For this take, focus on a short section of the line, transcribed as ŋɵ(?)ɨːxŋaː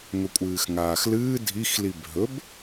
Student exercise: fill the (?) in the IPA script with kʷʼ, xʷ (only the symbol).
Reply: kʷʼ